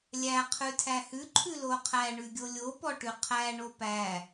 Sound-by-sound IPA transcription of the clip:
lʲ æ qʰ ʉ tʰ æ h ʉ ǃʰ ʉ l o qʰ æ ɳ ʉ ɡʲ o lʲ o p ɔ ʈ ʉ qʰ æ ɳ o p æ

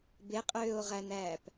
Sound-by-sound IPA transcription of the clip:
b e qʼ øː o̯ ʁ æ n æː p

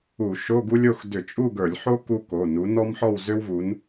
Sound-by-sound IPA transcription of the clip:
u˧˩˧ ʃ o˧˥˧ ɡ u˥ lʲ o˥˧ x d ʏ˧˩˧ t͡ʃʼ u˥˧ ɡ ə˞˧˩˧ lʲ ħ o˥ k u˥ k o˩˧˩ n u˨˦ n ɔ˥ m ħ ɔ˥˧ w z ʏ˥ w v u˨˦ n

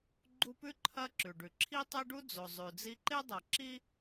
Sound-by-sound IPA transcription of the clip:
ɡ͡ǃ u˦ p ʉ˥ ǃʰ ɐ˦ ǁ ʉ˩ ɖ ʉ˩ ǁʰ i˥ tˤ e˥ ɖ u˥ d͡z o˨ zˤ ʉ˨ d͡z i˥ ǃ e˥ dˤ ɐ˨ ǁ i˥

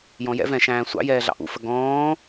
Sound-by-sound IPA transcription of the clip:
j ɔ̃ j ɛ̰ v ɛ̃ ʃ æ̃ː sʷ ɑ̰ j ɛː ɮ ɑ̰ ʔ ṵ f ə ɡ ɔ̃ː

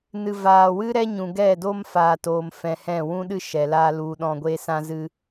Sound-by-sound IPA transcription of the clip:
n ɨ˨ v aː˨ w ɨ˦ ɾ ɛ˦ ɲ ũ˨ ɡ ɛ˦˨ d o˦ m f aː˨ t oː˨ m f ɛ̃˧ h ɛ̃˦˨ w ũ˦ ɗ ɨ˦ ʃ ɛ˨ l aː˦ l u˧ ɗ ɔ̃˧ ɡʷ e˦ s ã˦ z ɨ˦

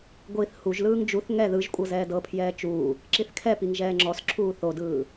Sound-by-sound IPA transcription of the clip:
ɡʷ i θ h u ʒ l ɯː ŋ d͡ʒ u θ ŋ ɛ ð ɯ ʒ kʷʼ ɤ z ɛː d ɤ pʰ j ɛː t͡ʃ uː | ǁ i θ kʰ ɛ p i ŋ ʒ ɛː ŋ͡ǁ ɔ s ǁʰ uː θ o d ɯː

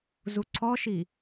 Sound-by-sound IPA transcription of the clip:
z u ǀʰ ɔ ʃ i

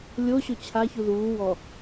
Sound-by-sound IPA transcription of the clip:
lʲ o ɕ o t͡ɕʰ a ç u ð uː w ɔ

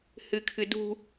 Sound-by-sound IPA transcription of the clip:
h ɨ kʰ ɨ d ṳ

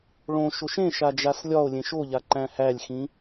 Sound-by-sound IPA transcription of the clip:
ɭ õ ʃ o ʃ ẽ ʃ a d͡ʒ a s lʲ ɒ o̯ lʲ ẽ ʃ o ʎ a ǃ æ̃ h æ lʲ x ĩ

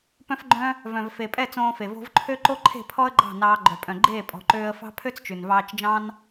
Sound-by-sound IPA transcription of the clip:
p œ̃˧ f ɡ͡ǃ œ̃˧ | v œ̃˨ v f e˨ pʼ ɛ˦˨ t͡s õː˧ f e˨ v o̤˧ v ǃʰ ø˦ ǃ o˦ ǃʰ e̤˦˨ pʰ ɔ˦ ə̯ ɡ͡ǃ ɑ̤˦˨ n ɑː˧ ɡ͡ǃ œ˨ pʼ œ̃˨ ɡ͡ǃ eː˦˨ pʼ ɔ̤˨ ǃ øː˧ ə̯ f ɑ̤˦ pʰ ø˦ t͡s t͡ʃ ʉ˨ n v ɑː˧ t͡ʃ d͡ʒ ɑ̃˦ n

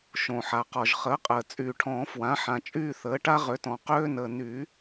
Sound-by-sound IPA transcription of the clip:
ʃ õ˩ ħ a˩ q ɔ˩ ʒ χ əː˩˥ qʼ əː˩ t͡sʼ yː˩ ʈʰ ɔ̃ː˨˩˦ f w ã˩˥ ħ ã˩ t͡ʃʼ yː˥˧ θ əː˩˥ ʈ a˦˥ ʁ ø˩˥ t ɔ̃˩ q øː˦˥ n əː˩ n y˨˩˦

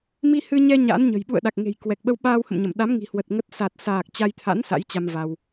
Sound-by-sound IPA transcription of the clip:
m i˧ h ɨ˧ ɲ ɛ˧ ɲ a̰˧˥ n ɲ ə̤˨˩ j ɓ ṵ˧˨ ə̯ ɗ a˨˩ k̚ ŋ e̤˨˩ j k w ɛ˨˩ k̚ ɓ ə˧ w ɓ aː˧ w h ə̰˧˨ m ɲ ə˧˩ m ɗ a˨˦ m ŋ i̤˨˩ h w ə˨˩ t̚ ŋ ə˦˥ t̚ s a˨˩ t̚ s aː˨˩ k̚ t͡ɕ a˧ j t̪ʰ a̰˧˥ n s a̰˧˥ j t͡ɕ a˧ m v a˧ w

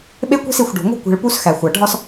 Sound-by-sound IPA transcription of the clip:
ɓ e˦ kʷ e̤˦ s i˨ xʷ ɖ o̤˨ ŋʷ e̤˦ kʷ e̤˨ ɭ p u˦ s x æ˨ xʷ æ˨ ɖʱ ɒ˦ s

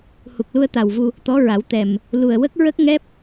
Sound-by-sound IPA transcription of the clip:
h u˨˩ k̚ l u˧ ə̯ t̪ a˨˩ w v u˧ | t̪ ɔ˧˥ ɹ a˨˩˦ w t̪ ɛ˨˩ m | l u˨˩ ə̯ w ə˦˥ k̚ ɹ ə˦˥ k̚ ŋ ɛ˦˥ p̚

